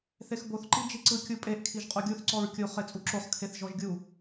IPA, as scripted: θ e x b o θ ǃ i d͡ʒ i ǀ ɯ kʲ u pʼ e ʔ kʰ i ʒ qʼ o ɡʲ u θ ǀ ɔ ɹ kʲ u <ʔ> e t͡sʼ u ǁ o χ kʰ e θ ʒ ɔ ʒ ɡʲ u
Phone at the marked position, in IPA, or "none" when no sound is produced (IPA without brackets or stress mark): χ